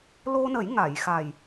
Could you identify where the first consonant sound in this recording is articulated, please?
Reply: alveolar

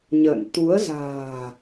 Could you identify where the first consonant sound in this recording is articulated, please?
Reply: palatal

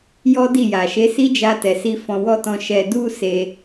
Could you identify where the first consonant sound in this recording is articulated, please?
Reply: palatal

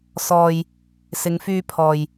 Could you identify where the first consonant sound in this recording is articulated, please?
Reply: alveolar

